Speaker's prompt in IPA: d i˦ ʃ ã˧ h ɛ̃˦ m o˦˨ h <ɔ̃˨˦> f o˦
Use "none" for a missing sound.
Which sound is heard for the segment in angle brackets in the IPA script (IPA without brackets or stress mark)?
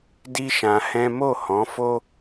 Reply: ɔ̃˨˦